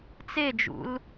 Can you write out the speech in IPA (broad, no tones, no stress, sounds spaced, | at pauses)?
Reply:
t͡s e d͡ʒ ṵ l